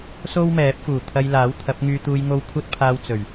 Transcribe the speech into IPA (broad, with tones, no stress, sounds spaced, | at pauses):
s o˥ w m ɛː˨˥ p̚ f uː˨˩ t̪ʰ ɐ˧ j l aː˨˥ w t̪ʰ ɐ˨˥ p̚ ŋ yː˧ t̪ uː˧ j ŋ o˧ w kʷʰ ɐ˥ t̚ pʰ aː˧ w t͡s ɵ˨˩ ɥ